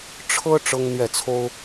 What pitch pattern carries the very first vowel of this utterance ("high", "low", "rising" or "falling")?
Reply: high